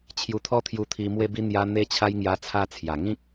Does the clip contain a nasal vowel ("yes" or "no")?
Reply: yes